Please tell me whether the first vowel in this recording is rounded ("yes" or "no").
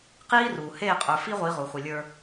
no